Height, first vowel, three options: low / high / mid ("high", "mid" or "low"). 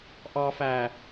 low